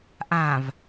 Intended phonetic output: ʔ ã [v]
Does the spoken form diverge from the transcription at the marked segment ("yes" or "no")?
no